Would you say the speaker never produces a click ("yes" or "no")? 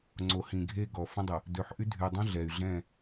no